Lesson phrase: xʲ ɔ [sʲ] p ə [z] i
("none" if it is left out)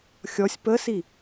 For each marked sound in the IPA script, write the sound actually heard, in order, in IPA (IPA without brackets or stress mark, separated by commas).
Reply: sʲ, s